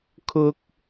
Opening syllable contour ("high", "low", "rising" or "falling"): high